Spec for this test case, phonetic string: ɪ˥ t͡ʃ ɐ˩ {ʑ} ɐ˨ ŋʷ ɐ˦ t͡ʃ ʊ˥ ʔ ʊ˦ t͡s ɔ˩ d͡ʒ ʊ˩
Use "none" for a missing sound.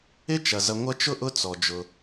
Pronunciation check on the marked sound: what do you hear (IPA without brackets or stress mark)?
z